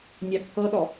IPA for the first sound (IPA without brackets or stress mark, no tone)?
nʲ